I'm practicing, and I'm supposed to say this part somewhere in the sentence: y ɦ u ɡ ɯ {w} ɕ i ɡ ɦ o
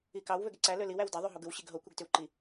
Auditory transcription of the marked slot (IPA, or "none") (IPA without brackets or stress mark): w